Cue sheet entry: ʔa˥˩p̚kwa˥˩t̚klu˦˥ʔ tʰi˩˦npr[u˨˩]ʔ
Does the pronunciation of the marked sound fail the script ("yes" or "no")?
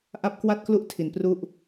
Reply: yes